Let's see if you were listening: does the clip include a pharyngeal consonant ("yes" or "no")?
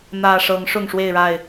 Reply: no